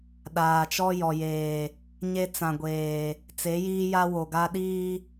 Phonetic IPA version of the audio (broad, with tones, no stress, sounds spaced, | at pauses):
ɗ aː˨ t͡ʃ ɔ˦ j ɔ˨ j eː˨ | ɲ e˦ t͡s ã˨ ɡʷ eː˨ | t͡s e˨˦ j iː˦ j a˦ w o˨ ɡ a˦ ɗ iː˦